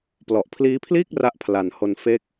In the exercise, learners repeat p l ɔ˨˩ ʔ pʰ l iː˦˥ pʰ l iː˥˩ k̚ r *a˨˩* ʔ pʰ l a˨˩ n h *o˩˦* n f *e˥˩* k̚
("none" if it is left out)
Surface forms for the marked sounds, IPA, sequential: a˥˩, o˧, e˦˥

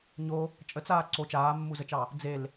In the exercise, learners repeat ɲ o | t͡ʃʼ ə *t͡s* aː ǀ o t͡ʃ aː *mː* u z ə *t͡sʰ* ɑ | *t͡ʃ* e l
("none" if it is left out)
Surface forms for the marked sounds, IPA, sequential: t͡s, mː, t͡ʃ, d͡z

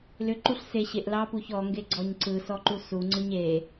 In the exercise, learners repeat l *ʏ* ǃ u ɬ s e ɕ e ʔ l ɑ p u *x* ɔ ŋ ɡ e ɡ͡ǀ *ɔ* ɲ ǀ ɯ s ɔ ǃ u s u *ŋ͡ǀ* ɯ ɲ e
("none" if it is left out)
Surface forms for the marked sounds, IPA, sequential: ʏ, ç, ɔ, ŋ͡ǀ

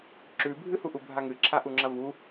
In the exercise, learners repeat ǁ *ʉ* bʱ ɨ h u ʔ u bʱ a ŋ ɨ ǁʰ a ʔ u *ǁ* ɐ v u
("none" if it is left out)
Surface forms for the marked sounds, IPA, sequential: ʉ, ŋ͡ǁ

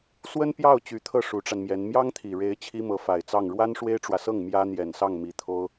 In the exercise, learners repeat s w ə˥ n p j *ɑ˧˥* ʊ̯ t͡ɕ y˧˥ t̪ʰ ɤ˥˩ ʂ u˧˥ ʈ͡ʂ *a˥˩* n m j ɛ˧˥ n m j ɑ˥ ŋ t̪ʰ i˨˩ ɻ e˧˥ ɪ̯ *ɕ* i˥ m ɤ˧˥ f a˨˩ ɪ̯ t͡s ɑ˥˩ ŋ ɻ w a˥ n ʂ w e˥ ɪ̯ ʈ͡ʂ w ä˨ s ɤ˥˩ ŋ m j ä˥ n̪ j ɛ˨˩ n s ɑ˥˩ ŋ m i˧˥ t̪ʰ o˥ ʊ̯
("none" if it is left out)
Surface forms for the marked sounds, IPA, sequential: ɑ˥˩, a˧, t͡ɕʰ

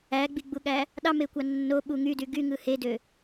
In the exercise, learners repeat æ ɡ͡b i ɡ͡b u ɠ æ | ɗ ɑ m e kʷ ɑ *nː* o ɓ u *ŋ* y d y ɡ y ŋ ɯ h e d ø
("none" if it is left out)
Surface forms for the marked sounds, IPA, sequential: nː, ŋ

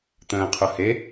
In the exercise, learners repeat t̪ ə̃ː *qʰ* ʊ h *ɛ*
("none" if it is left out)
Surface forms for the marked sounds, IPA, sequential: qʰ, e

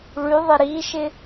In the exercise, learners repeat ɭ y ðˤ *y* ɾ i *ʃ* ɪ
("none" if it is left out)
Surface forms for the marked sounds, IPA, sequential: ɪ, ʃ

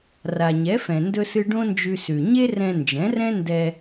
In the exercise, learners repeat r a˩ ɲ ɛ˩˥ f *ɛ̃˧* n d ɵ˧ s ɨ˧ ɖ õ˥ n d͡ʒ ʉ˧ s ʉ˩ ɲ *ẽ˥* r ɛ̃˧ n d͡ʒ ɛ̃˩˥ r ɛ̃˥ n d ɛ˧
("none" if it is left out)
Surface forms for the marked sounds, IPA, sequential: ɛ̃˩, e˥

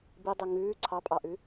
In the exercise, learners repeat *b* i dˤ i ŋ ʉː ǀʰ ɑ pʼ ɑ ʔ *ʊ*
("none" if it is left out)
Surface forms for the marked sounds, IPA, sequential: b, ʉ

